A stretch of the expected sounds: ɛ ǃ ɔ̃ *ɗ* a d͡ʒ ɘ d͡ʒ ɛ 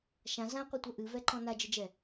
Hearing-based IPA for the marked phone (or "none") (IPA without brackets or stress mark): n